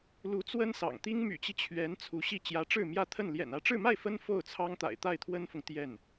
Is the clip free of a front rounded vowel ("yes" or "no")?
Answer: no